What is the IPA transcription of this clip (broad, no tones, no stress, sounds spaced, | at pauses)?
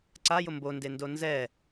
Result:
ǀ a j ʊ m b o n d e n d o n z ɛ